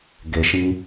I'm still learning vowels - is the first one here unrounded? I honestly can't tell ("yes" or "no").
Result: yes